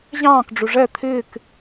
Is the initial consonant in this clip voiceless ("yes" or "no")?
no